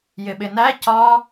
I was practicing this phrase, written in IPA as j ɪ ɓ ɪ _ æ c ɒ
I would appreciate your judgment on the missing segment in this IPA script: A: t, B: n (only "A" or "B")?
B